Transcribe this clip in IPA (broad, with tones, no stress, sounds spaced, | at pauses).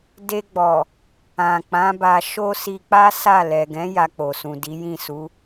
d e˧ ɡ͡b ɔ˨ | ã˨ k͡p ã˨˦ b a˧ ʃ o˦ s i˧ k͡p a˦ s a˦˨ l ɛ˨ ɡ ɛ̃˨˦ j a˧ k͡p o˨ s ũ˨ d i˨˦ j ĩ˦˨ s u˨˦